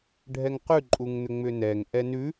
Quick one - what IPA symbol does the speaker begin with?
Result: ɖʱ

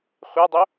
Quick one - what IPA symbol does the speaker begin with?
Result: χʷ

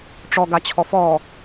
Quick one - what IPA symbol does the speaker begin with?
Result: ʈ͡ʂ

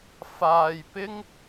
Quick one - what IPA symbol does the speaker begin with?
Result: f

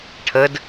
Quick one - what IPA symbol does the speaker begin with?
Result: ʈʰ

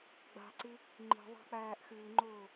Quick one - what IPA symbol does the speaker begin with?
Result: ɡ͡b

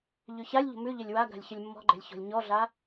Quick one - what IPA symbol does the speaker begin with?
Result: ʎ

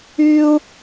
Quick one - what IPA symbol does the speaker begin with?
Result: y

